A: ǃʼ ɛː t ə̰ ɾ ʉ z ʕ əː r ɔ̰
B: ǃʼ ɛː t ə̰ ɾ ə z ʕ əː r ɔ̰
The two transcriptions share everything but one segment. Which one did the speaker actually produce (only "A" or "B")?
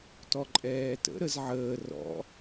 B